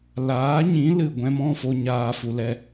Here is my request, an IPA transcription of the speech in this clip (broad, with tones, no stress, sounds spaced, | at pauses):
l aː˨˦ ɲ ĩ˨˦ l ɨ˨ ɡʷ ɛ̃˧ m ɔ̃˦˨ f o˧ ɲ aː˨ f u˨ l ɛ˧